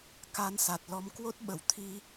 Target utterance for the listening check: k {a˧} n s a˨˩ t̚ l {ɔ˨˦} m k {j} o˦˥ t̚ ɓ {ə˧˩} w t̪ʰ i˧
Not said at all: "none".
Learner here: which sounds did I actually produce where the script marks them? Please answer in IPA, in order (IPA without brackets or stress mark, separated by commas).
a˧, ɔ˨˦, w, ə˧˩